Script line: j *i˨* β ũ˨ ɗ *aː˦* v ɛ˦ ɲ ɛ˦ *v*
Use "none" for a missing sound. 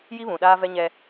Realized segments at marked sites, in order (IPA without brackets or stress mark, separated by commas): i˦, aː˦, none